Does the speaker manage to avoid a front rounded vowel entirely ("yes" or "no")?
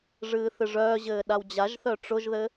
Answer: no